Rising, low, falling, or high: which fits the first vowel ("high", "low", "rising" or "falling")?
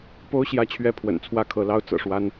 high